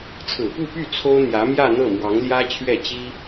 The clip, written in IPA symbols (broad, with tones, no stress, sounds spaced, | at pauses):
t͡sʰ ɹ̩˨˩ p u˥˧ p y˥˩ t͡sʰ o˥ ʊ̯ n̪ j ä˧˥ m j ä˥˧ n̪ ɤ˥˩ m w ɑ˧˥ ŋ l j ä˥ t͡ɕʰ ɥ ɛ˥˩ t͡ɕ i˥